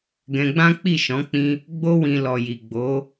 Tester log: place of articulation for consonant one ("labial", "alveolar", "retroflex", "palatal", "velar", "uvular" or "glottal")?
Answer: velar